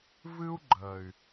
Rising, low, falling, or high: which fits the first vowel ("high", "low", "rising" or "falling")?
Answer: high